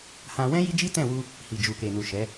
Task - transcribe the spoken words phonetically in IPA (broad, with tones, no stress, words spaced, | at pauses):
hã˧wɛ̃˦ ji˦d͡ʒi˦tɛ̃˦˨wu˧ | hi˨d͡ʒu˨ke˨nu˨ ʃɛ˨˦